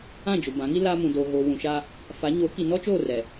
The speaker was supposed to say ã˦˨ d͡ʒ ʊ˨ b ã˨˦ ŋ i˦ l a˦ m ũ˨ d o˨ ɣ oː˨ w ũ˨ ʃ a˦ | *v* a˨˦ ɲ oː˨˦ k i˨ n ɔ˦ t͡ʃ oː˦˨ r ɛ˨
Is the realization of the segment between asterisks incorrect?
yes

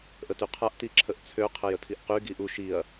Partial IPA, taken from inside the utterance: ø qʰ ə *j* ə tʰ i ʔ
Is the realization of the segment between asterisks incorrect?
no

